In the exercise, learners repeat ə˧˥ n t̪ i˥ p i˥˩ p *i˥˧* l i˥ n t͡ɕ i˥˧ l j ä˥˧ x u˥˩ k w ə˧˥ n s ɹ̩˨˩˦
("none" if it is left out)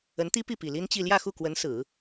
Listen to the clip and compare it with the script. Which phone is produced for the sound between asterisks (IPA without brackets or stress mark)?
i˨˩